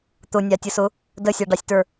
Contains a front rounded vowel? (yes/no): no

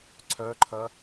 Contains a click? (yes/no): yes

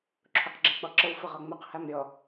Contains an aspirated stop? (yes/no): yes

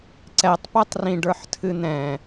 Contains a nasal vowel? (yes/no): yes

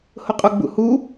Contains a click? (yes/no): no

